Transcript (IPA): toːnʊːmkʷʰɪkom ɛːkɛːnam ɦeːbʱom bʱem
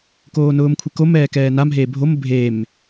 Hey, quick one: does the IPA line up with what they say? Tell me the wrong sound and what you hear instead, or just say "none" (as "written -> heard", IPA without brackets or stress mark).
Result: t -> k